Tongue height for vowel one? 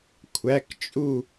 low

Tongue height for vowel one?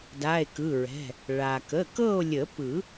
low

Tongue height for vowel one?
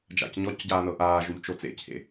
low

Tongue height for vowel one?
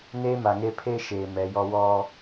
mid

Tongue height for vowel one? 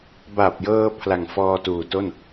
low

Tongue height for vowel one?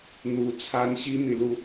high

